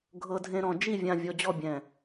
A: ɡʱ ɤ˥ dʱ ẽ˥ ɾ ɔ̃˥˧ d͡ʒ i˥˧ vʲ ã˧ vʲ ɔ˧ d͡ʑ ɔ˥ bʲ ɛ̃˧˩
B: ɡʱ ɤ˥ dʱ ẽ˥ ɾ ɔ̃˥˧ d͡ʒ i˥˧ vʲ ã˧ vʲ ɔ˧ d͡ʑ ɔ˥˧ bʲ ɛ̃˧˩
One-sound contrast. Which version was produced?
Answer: B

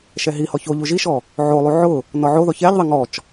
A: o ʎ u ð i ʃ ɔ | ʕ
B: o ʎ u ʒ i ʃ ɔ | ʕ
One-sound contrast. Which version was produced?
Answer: B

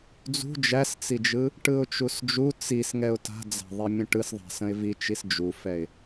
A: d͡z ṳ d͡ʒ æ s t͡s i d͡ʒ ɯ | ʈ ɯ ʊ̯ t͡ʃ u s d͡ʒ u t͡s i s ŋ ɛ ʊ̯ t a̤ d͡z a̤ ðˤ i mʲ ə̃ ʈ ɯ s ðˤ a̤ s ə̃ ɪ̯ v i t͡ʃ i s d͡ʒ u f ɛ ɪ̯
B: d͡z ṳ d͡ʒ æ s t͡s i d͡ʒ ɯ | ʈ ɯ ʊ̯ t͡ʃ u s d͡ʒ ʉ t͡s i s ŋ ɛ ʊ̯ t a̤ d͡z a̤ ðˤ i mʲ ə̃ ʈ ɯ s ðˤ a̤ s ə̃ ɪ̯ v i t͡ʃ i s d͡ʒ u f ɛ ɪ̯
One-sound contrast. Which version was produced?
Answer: A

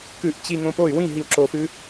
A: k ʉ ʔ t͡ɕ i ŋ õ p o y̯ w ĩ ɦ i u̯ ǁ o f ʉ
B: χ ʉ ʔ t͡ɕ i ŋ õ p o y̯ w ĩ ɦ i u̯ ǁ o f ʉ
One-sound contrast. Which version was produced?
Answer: A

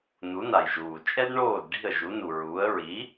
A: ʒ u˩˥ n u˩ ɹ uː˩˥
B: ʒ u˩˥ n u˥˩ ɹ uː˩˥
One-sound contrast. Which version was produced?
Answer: A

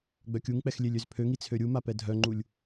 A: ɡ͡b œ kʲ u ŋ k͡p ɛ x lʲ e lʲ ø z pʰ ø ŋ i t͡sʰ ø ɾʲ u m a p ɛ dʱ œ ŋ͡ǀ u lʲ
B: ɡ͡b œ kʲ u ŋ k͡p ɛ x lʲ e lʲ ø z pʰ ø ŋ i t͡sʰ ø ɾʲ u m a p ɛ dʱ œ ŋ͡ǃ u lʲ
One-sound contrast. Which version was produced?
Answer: B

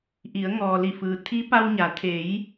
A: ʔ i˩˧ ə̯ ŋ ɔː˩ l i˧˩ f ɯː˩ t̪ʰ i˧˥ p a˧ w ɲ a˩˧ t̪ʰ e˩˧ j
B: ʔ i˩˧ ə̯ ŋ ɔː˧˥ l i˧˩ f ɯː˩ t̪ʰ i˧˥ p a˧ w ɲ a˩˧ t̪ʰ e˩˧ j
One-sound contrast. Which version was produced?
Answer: A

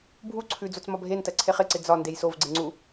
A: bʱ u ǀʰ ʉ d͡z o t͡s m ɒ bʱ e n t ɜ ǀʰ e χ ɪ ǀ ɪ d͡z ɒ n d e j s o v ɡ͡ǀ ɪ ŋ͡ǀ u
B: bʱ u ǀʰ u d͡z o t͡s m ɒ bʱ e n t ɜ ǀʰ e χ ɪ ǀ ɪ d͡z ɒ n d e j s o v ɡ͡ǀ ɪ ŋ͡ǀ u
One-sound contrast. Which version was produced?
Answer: A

